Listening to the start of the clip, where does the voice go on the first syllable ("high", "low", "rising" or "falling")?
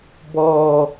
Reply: high